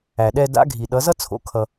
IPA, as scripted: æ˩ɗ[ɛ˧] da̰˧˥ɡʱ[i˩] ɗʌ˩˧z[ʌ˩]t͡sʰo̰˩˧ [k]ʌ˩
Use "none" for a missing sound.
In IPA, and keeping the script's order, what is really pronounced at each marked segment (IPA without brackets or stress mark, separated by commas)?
ɛ˧, i˩, ʌ˥, kʰ